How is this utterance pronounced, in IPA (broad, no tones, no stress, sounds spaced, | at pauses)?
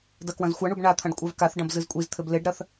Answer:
d ɐ k w ɐ̃ z xʷ a ɳ u b ɳ a t̪ʰ ɐ̃ ɖ kʷʼ a v k a θ ɖ ɐ̃ b z ɨ z kʷʼ i z t̪ʰ ɘ b l e ɖ ɾ ɐ θ